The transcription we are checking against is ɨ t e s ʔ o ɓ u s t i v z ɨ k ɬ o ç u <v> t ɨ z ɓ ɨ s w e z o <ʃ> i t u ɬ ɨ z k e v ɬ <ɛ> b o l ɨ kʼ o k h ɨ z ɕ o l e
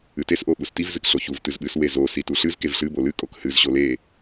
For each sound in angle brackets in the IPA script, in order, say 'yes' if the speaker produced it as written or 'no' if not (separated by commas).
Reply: yes, no, no